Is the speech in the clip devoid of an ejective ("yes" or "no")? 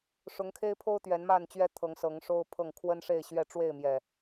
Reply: yes